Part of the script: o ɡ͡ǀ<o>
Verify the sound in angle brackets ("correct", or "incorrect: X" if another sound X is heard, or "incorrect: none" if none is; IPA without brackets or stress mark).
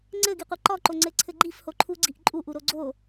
correct